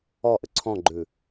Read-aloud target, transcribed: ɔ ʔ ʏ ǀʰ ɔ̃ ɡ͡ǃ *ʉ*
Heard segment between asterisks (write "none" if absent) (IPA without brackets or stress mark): ʉ